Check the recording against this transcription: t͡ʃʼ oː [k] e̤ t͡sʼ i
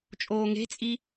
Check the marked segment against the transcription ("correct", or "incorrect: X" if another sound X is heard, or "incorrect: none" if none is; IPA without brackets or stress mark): incorrect: ŋ